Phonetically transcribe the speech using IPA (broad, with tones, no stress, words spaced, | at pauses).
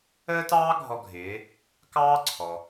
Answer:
əː˥tɑː˥ɡʱɔ˧ɡʱɪː˩˧ | kɑː˥ǀʰɔ˩